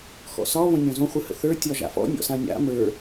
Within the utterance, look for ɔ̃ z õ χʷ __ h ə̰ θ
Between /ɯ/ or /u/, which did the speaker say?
ɯ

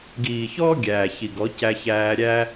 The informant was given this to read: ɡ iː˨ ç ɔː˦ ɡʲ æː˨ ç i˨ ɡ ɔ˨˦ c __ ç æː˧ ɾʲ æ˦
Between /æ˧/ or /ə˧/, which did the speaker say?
æ˧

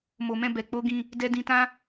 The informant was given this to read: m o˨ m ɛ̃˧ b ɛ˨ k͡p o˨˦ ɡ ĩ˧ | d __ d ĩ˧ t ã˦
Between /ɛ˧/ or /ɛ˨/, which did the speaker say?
ɛ˧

